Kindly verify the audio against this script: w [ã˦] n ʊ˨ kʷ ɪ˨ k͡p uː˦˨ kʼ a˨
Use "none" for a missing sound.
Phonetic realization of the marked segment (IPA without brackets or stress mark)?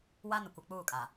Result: a˦